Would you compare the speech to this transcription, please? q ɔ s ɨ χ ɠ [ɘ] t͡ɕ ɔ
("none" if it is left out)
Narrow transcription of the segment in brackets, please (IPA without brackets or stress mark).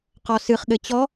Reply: ɘ